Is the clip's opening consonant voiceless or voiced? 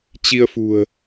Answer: voiceless